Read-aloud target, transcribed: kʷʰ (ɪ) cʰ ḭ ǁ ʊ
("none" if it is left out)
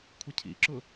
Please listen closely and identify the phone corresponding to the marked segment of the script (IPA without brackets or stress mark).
ɪ